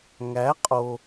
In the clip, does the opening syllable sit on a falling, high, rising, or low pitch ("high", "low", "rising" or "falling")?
rising